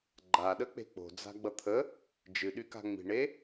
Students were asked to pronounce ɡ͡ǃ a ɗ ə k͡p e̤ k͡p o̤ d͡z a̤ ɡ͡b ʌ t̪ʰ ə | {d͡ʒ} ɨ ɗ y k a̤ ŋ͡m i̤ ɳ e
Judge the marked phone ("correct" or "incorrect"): correct